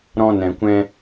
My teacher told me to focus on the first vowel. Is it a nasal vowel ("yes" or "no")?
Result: yes